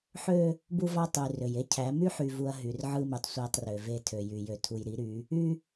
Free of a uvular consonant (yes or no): yes